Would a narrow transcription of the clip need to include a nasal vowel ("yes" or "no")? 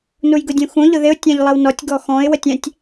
yes